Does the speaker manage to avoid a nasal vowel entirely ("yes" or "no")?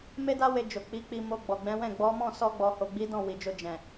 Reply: no